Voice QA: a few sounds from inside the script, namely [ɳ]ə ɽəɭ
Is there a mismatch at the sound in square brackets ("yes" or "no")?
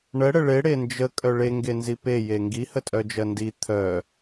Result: no